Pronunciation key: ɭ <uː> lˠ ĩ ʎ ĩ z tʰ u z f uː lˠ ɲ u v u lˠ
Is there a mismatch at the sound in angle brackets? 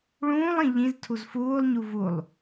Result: yes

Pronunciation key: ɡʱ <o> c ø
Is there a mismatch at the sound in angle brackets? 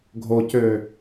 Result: no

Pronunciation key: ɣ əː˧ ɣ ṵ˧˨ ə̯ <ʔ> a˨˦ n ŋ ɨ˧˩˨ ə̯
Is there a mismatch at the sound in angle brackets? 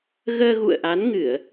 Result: no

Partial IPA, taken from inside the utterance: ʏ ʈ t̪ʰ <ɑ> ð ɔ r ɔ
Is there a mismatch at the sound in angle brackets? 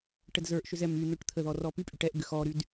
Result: yes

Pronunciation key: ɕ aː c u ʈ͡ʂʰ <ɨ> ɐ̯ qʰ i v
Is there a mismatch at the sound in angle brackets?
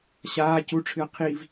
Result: no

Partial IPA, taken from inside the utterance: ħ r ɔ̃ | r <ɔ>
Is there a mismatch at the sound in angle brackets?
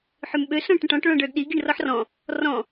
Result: yes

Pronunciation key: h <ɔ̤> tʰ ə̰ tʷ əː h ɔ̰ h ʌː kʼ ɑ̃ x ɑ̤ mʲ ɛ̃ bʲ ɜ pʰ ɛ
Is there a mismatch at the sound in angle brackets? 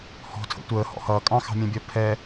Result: no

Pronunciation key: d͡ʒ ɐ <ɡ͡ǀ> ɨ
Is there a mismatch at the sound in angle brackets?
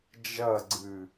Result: no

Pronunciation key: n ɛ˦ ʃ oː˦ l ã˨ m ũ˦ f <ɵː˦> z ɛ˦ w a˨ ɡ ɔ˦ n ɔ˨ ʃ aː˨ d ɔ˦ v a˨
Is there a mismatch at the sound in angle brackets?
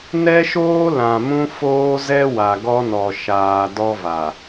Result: yes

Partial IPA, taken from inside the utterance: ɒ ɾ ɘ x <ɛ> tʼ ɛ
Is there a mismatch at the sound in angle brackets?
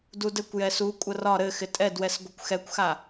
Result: yes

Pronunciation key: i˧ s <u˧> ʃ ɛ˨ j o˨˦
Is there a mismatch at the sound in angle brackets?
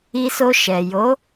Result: yes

